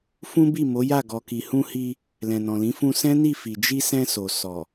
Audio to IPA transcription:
f ũ˦ b i˦˨ m o˨˦ j a˦˨ ɡ ɔ˨ k i˨ h ũ˧ h i˧ | l ɛ̃˨ n ɔ̃˨ l ĩ˨˦ f ũ˧ s ɛ̃˦ n i˦˨ f i˨ d͡ʒ i˧ s ɛ̃˧ s o˨ s ɔ˨

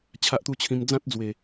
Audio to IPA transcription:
t͡ɕʰ a˦ ʔ t̪ u˥˧ t͡ɕʰ ĩ˧ m d͡z ã˦ t̚ d͡z w e˨˩

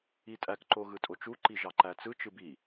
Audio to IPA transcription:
i tʼ æ k ǃ o ɣ ɯ tʼ o t͡ʃ u ǃ i ʒ ɑ ǃ æ t͡s ɯ t͡ʃ ɯ b i

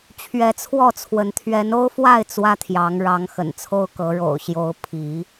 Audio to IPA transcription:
t͡ɕʰ ɥ ɛ˨˦ t͡sʰ w ɔ˥˨ t͡sʰ w ə˨˦ n t̪ʰ ɥ ɛ˨˦ n o˦ ʊ̯ f w a˥˨ ɪ̯ t͡s w ä˦ t̪ʰ j ɑ˨˦ ŋ ɻ ɑ˨˦ ŋ x ə̰˨˩ n t͡sʰ o˦ ʊ̯ k ɤ˨˦ ɻ o̰˨˩ ʊ̯ ɕ j o˨˦ ʊ̯ pʰ i˨˦

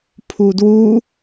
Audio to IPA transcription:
pʰ u d w u

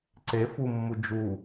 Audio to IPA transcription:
ǀ e f u mː u d͡ʒ u

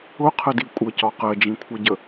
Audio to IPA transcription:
ʊ qʰ ə d i kʷʼ ə c ɒ q ɜ d͡ʒ ĩ kʷʰ ʌ ɟ ə

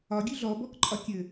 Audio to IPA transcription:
ɒ ɡʲ ʉ ɮ ɔ b ɔ k ǃʼ ɒ kʲ ɘ

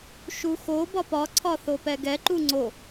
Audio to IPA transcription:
ʃ u x o b ɒ p ɒ ǀʰ ɒ θ o p ɛ ɡ ɛ ǃ u ŋ͡ǀ o

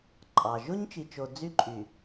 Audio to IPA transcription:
ǃʼ ɑ˨ ʒ o˦ ɲ t͡ʃ i˨ t͡ʃ o˨ d͡z y˦ ǃʼ y˨

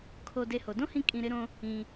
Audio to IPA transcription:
kʰ o˧ d e˧ h o˨ d õ˦ h ĩ˧ kʼ ĩ˧ ɾ ɪ˦ ɾ õ˦ | ĩ˧

